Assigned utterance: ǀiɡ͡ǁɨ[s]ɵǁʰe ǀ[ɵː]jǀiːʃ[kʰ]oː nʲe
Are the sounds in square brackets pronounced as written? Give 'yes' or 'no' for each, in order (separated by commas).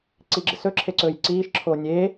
yes, yes, no